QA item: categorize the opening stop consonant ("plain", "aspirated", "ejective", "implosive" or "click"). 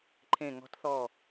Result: click